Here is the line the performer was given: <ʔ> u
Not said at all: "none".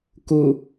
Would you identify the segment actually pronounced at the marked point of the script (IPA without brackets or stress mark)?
k